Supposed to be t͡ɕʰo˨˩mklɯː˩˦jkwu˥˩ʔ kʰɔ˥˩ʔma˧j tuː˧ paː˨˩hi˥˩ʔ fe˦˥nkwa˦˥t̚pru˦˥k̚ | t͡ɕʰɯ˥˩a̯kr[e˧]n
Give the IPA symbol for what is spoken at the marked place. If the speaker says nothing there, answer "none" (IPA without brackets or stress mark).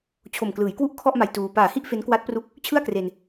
e˧